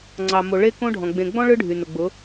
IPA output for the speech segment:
ŋ͡ǀ ɑ˨ m o˨ ɭ e˦ k õ˦ ɖʱ ɔ̃˨ ɡ͡b ẽ˨ ɡ͡b ɔ̃˦ ɭ ɯ˦ ɖʱ y˨ n ʊ˨ ɡ͡b ʊ˨˦

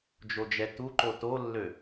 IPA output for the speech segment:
d͡ʒ o d͡ʒ ɛ t u ǃ o t o lː ø

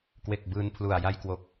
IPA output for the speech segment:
k w e˨˩ k̚ b ɯː˧ n pʰ l u˨˩ a̯ j a˦˥ j k w o˨˩ k̚

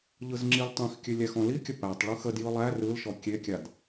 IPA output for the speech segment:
ʎ ɯ z ŋ͡ǁ i l tˤ ĩ x kʲ ʉ lʲ æ x ɔ̃ l i kʲ ə p æ tˤ ɭ ɯ x ə d j ɯ lˠ æ r ɯ l ʃ ɔ kʲ e kʲ a d

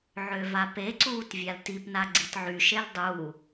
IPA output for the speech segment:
ʕ ø v a p e ǀ uː t vʲ a l t i p n a ɡ͡ǀ i t ʕ y ʃ e l dˤ u

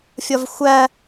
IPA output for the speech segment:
fʲ ɒ v xʷ æ

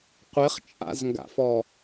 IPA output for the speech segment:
qʷ ɪ χ t͡ʃʼ a̰ z ŋ ɡ a̰ f ɔ

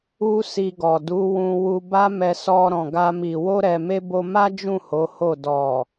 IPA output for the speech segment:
u˦ s i˧ ɡ ɔ˨ d u˨˦ w ũ˧ w u˧ b a˦ m ɛ˧ s ɔ˧ ɾ ɔ̃˨ ɡ a˧ m i˨ w o˧ ɾ ɛ˨ m e˧ b o˧ m a˦ d͡ʒ ũ˦˨ h o˨˦ h o˦˨ d ɔ˨

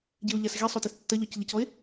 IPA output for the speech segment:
ɟ e o̯ ʎ a s ɣ i sˤ o t i s tː ɐ ʎ ɔ c ʎ ɐ c ɔ e̯

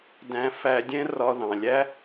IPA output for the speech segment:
d æ̃˧ f æ˧ dʲ ɛ̃˥ r ɒ˧ ð ɑ̃˩ lʲ æ˥

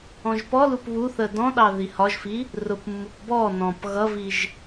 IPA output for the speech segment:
ɔ̃ ʒ p ɔ l u p β u θ ə d ɔ̃ ɗ ɑ ð i h ɒ ʒ f i | r ʊ p mː u p b ɔ n ɔ̃ p ɣ ʌ v i ʒ

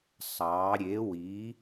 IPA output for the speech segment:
sˤ ɑ˩˧ ɾʲ e˩˧ w i˩˧

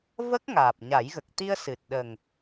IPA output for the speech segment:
v ə˦˥ k̚ ŋ aː˨˩ p̚ ɲ a˨˩˦ j ɣ ə˨˩ k̚ t̪ i˧ ə̯ s ɨ˨˩ t̚ ɗ ə˨˩ ŋ

